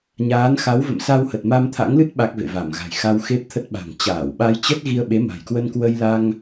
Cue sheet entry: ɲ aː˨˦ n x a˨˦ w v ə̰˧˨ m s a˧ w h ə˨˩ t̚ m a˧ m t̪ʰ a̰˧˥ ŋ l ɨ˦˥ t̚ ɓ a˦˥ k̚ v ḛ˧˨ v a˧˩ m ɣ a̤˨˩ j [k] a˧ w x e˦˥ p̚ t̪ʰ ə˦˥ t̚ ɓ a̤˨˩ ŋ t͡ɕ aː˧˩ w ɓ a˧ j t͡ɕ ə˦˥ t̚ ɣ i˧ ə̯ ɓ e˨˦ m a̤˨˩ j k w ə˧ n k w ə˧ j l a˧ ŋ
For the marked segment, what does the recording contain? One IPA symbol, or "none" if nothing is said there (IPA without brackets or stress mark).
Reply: x